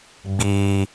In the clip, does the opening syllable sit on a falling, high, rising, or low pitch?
high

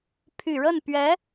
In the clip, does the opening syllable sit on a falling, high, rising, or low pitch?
low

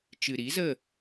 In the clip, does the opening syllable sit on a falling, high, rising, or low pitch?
low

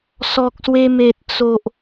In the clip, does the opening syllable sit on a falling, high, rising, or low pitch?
low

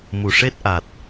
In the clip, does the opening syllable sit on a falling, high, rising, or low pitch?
low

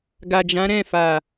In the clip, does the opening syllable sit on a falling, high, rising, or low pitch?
low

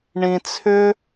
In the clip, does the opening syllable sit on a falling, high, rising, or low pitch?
low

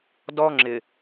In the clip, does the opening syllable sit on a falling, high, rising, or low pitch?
high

